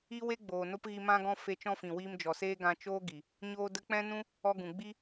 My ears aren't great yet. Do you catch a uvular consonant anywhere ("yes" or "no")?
no